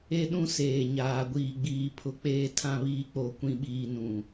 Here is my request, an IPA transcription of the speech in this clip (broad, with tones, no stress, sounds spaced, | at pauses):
e˦ ɗ ũ˦ s eː˨ ɲ aː˨ ɡʷ iː˨ ɡ͡b iː˨ pʰ ʊ˨ k͡p eː˨ tʰ ã˨ β iː˨ k͡p o˨ kʷ ĩ˨ ɓ iː˨ n ũ˨